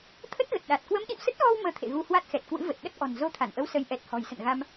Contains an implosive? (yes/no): yes